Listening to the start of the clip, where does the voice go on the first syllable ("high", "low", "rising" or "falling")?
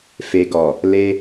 low